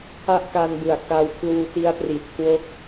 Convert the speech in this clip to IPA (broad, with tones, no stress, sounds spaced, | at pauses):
kʰ a˥˩ ʔ k a˧ n b ɯ˨˩ a̯ k a˧ w pʰ l uː˧ t i˦˥ a̯ p r i˨˩ t̚ kʰ w o˦˥ k̚